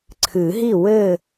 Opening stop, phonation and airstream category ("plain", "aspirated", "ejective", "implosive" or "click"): click